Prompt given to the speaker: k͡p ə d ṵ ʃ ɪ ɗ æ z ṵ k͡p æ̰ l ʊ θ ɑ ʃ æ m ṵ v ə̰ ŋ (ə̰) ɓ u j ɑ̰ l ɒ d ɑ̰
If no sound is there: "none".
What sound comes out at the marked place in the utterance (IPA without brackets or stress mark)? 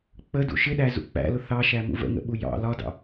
ə̰